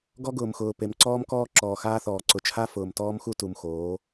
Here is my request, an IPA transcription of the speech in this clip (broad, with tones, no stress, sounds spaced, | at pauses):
ɡ ɔ˦ ɡ ʊː˨ m x ʊː˨ p e˨ m ǀ ɔː˦ m k ɔː˦ ǁ ɔː˨ x aː˦ θ ɔː˨ ǀ ʊ˨ t͡ʃʰ a˦ f ʊː˨ m t ɔː˦ m x u˦ t u˨ m x oː˨˦